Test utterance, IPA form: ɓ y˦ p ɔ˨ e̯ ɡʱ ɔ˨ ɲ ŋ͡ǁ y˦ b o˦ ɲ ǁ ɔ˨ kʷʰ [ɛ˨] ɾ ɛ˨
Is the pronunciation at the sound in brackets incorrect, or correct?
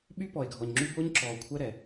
incorrect: ɛ˦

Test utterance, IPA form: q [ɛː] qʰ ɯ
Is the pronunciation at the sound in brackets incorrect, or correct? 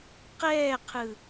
correct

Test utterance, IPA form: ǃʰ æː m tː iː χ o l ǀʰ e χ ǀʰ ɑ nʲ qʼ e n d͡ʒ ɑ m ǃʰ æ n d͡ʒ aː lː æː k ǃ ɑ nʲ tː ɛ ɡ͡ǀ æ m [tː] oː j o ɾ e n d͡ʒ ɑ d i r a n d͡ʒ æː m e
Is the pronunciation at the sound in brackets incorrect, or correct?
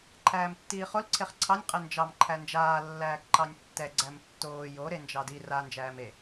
correct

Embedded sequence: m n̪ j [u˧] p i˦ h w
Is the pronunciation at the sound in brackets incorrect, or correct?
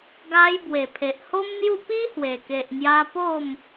incorrect: u˥˧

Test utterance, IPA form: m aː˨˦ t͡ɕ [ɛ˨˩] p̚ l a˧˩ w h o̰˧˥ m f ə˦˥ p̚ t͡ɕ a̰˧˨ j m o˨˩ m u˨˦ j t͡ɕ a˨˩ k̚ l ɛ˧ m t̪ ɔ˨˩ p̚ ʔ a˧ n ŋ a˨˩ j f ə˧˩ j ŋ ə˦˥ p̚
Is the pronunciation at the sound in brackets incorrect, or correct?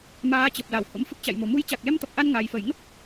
incorrect: ə˨˩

